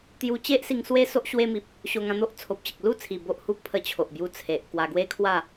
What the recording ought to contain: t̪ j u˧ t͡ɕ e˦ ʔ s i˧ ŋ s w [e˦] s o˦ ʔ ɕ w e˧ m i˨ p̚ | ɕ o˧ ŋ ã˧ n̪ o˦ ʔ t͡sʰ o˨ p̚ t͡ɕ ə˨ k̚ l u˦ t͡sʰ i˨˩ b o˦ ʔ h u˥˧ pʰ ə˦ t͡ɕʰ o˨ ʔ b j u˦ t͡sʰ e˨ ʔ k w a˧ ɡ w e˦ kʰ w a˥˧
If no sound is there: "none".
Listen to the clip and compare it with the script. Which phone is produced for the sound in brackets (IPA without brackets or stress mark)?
e˦